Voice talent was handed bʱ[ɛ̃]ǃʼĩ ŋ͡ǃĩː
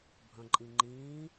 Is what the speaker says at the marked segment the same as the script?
no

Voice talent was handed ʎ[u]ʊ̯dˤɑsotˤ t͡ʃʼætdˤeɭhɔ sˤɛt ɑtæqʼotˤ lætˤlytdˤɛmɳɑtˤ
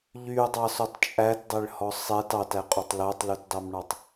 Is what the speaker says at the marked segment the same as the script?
no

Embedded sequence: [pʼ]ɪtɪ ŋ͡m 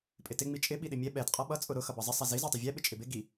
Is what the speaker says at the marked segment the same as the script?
yes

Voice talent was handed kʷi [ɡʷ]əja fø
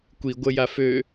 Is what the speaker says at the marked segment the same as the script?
yes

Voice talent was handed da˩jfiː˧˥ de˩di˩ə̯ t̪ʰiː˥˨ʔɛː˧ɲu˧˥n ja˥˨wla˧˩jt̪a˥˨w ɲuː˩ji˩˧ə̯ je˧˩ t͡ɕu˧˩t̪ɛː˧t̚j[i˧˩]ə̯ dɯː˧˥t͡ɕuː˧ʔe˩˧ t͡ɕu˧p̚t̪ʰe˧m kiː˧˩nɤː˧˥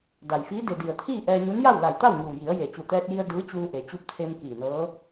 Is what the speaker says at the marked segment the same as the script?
no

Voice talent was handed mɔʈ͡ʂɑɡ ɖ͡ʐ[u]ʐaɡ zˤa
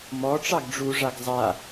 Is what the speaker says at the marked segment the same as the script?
yes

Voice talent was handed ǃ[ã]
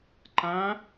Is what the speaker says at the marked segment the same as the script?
yes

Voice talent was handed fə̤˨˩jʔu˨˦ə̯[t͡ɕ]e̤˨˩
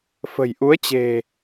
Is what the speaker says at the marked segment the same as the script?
yes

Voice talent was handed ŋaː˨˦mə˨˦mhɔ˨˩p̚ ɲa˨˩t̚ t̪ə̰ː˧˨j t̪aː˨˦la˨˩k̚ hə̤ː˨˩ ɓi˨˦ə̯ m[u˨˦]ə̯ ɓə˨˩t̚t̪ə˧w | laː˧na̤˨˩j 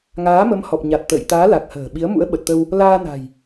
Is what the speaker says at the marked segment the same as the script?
no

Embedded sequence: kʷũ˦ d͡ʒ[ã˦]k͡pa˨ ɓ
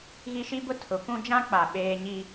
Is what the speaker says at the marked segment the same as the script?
yes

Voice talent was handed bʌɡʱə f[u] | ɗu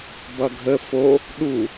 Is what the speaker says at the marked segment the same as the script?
no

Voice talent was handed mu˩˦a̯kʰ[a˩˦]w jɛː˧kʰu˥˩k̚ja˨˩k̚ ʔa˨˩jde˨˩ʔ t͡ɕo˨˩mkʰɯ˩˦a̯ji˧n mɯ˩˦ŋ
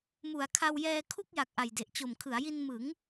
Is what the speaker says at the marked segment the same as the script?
no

